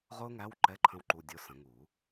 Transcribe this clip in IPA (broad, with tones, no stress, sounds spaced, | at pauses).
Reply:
ʁ ʊː˥ ŋ æ˧˥˧ w ǃ ɛ˧˥˧ ǃʰ ə̃˥ w ǃ u˧˥˧ dʲ ʊ˧˥˧ s ə̃˨˩˦ ŋ uː˨˩˦